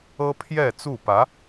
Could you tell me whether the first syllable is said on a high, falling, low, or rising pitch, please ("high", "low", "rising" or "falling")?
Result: high